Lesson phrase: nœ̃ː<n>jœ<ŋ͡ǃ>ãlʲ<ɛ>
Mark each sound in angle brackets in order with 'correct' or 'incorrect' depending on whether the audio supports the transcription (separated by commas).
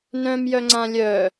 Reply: incorrect, incorrect, incorrect